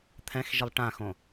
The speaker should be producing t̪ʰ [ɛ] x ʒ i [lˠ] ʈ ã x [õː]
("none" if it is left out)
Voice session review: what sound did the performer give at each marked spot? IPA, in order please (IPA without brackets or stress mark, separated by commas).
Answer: ɛ̃, lˠ, õ